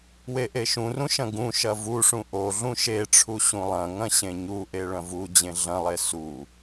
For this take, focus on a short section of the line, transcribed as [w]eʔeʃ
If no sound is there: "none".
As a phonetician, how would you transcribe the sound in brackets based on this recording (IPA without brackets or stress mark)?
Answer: w